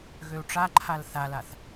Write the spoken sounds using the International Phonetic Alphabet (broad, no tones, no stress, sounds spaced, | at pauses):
ɣ ø u̯ ʈ͡ʂ a ǃʰ a l θ a l a θ